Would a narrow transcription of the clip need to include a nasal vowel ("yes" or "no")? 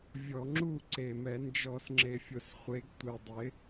no